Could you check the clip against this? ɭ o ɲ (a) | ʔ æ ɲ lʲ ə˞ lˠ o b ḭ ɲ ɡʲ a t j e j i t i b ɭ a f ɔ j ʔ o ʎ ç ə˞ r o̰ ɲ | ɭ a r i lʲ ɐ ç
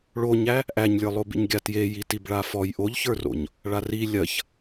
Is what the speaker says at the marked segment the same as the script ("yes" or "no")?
no